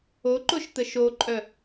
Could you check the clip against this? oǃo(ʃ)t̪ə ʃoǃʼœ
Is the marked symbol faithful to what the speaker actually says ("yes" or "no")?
yes